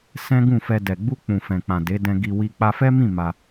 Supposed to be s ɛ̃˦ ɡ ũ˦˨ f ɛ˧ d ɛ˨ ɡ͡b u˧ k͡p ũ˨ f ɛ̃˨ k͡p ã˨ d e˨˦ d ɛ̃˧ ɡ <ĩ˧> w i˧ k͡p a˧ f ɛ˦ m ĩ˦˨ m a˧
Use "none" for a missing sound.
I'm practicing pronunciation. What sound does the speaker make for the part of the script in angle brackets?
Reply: i˧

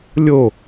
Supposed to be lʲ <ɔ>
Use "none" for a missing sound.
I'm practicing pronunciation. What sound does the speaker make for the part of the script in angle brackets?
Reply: o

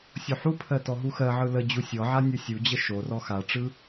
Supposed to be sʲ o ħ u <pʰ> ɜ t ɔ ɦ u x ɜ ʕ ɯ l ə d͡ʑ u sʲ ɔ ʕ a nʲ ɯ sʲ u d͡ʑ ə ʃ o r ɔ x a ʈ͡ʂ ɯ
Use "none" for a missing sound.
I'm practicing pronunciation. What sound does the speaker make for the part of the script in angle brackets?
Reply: pʰ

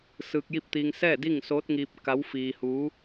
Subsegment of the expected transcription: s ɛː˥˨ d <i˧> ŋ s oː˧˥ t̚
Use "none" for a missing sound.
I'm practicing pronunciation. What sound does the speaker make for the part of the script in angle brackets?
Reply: i˥˨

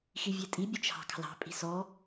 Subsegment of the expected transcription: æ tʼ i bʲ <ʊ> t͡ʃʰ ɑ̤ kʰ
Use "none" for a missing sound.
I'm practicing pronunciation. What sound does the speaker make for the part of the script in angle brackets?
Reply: ʊ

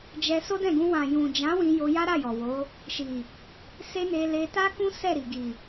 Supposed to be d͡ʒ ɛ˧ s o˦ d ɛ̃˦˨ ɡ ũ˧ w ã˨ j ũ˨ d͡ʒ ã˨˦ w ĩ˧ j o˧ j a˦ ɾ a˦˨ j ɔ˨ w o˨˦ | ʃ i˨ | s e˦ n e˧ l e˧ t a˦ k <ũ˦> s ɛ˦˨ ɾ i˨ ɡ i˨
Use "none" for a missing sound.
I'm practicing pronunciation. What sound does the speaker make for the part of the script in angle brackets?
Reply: ũ˦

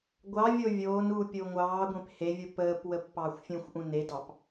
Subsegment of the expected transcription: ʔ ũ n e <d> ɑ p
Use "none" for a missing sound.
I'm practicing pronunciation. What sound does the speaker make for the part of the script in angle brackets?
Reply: d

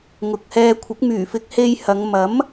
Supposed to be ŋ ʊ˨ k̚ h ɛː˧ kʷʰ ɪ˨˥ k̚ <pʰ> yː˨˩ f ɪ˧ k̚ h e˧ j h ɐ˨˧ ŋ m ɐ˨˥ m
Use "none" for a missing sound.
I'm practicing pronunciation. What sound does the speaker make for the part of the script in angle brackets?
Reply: m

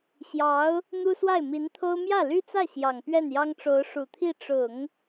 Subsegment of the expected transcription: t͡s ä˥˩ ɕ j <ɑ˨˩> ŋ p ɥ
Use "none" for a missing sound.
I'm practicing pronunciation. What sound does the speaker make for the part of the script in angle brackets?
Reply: ɑ˨˩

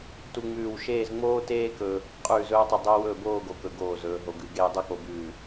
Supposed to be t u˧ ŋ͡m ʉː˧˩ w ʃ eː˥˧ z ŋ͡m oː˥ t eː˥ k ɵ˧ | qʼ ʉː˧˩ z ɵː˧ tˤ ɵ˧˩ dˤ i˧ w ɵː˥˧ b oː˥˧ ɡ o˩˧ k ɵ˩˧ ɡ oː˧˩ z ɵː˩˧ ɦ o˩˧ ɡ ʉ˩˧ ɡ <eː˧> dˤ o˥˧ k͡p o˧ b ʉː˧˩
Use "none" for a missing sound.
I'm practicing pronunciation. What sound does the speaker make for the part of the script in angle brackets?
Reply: eː˧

